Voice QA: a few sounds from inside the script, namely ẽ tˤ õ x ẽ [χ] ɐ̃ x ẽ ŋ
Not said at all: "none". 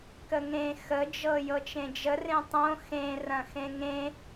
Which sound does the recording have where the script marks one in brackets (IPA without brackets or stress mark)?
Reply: r